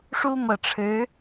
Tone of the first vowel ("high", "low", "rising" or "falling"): high